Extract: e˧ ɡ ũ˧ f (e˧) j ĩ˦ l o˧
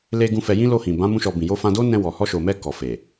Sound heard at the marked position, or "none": ɛ˧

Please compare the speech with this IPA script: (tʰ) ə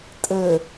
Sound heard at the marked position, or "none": tʼ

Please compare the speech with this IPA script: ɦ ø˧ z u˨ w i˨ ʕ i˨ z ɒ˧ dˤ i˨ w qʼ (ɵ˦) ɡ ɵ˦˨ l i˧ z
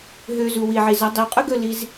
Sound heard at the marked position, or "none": ɵ˦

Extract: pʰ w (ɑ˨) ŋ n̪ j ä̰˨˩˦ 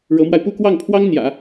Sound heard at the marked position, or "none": ɑ˥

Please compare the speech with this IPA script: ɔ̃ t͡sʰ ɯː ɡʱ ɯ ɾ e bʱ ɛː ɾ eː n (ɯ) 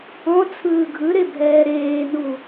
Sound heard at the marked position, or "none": u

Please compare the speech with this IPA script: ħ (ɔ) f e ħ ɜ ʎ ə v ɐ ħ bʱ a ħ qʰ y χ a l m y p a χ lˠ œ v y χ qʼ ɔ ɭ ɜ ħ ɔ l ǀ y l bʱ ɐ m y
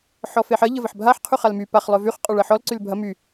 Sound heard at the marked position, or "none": ɔ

